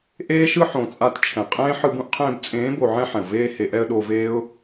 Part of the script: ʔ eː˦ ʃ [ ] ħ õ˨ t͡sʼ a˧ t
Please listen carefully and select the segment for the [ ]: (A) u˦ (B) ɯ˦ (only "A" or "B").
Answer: B